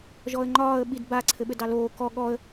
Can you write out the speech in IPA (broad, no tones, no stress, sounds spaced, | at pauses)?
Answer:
ʒ ɔ ə̯ ŋ͡ǃ ɒː ə̯ ɓ i d b a ǀʰ ɘ ɓ ɘ d ɑ l oː k ɔ ɠ ɔ ə̯